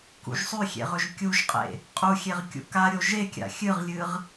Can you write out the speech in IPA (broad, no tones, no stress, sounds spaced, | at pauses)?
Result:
k ṵ ʒ sˤ ʉ xʲ ḛ ʁ ɵ ʒ kʲ u ʒ qʼ ḛ | qʼ u xʲ e ʁ kʲ ṵ k a ɾʲ o ʒ e kʲ a̰ xʲ ɨ ʁ lʲ ɨ ʁ